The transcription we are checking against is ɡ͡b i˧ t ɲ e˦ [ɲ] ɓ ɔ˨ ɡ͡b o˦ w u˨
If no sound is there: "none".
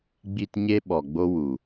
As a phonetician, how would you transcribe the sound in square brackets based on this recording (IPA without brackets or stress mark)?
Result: none